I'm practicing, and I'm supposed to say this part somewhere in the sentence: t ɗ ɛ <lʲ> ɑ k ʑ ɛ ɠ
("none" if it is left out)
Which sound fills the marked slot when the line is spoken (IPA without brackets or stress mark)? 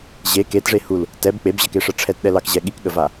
l